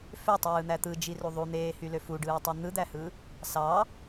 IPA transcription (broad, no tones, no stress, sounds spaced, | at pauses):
f ø tˤ ɯː n̪ æ t̪ ɯ d͡ʒ i r u ðˤ u n̪ eː h y l ø f u ɖ ɯː tˤ u n̪ ɯ d̪ æ h ɯ | s ɑ